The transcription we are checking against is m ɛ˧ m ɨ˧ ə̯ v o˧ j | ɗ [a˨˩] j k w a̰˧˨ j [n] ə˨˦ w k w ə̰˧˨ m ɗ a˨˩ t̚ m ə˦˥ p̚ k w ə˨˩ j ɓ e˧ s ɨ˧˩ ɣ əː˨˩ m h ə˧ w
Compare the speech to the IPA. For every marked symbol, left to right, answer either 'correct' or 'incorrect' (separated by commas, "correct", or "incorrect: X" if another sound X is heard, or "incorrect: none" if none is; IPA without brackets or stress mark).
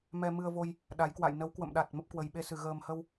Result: incorrect: a˨˦, correct